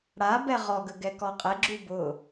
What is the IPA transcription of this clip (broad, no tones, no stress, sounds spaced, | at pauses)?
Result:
ɽ a b ɛ ʁ ɔ ɡ ə ɡ ɛ k ɔ qʼ ɛ ɡ͡ǁ u b ʊ